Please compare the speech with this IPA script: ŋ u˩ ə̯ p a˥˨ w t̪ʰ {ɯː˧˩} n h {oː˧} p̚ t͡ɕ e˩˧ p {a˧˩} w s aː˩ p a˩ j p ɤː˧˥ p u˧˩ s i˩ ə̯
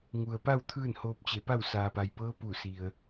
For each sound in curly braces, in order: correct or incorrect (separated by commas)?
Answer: incorrect, correct, incorrect